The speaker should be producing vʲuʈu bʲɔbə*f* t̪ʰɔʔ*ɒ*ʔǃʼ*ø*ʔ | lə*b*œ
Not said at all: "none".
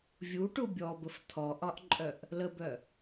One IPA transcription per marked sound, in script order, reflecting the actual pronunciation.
f, ɒ, œ, b

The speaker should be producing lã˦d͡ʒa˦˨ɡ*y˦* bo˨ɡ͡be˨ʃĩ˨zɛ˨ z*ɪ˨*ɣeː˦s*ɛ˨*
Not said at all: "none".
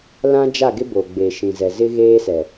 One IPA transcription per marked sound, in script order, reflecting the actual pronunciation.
ɪ˦, ɪ˦, ɛ˨

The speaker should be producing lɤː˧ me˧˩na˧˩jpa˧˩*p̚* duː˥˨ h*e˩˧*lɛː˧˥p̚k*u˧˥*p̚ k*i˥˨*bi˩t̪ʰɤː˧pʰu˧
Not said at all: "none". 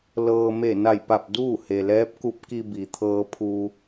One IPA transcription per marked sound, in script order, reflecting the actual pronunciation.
p̚, e˩, u˧˥, i˧

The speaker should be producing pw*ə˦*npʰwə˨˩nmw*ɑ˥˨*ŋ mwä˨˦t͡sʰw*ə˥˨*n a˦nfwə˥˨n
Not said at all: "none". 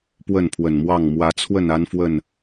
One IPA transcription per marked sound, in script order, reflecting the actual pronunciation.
ə˥˨, ɑ˥˨, ə˥˨

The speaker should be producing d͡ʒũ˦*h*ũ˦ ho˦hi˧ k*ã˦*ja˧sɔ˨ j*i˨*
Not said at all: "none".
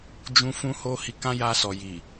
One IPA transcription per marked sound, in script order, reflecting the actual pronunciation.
f, ã˦, i˨

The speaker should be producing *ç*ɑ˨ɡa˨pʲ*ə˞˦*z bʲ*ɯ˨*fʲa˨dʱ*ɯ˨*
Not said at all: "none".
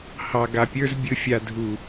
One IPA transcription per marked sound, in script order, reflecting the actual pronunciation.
h, ə˞˦, ɯ˨, u˨

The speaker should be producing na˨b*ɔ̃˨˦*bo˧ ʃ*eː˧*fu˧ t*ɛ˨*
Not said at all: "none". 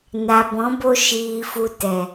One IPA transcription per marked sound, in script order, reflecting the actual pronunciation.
ɔ̃˨˦, iː˧, ɛ˨

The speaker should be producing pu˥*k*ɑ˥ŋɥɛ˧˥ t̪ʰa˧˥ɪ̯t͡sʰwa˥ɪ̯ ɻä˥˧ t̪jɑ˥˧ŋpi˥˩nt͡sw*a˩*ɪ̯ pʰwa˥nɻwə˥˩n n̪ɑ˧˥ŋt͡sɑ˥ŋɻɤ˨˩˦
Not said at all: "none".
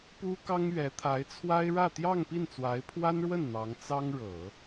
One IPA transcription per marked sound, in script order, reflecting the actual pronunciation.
k, a˧˥

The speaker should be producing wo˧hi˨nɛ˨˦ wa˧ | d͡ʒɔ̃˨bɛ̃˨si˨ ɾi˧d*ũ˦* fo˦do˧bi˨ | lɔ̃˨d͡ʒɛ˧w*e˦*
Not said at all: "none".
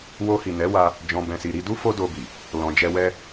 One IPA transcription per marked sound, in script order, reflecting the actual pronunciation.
u˦, ɛ˦

